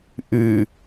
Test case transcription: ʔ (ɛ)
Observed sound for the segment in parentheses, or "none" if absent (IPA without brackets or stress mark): ɨ